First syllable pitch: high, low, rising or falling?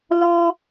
high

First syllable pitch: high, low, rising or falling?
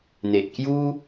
low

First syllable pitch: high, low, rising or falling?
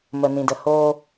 low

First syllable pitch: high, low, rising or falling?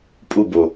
falling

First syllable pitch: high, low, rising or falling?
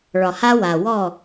low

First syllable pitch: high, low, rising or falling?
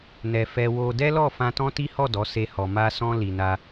low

